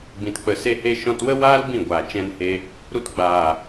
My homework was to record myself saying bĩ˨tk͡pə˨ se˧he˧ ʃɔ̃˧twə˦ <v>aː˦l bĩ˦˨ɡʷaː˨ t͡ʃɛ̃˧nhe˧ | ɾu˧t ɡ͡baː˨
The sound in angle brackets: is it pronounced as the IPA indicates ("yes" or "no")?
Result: no